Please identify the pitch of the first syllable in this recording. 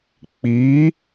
rising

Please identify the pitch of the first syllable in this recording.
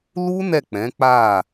high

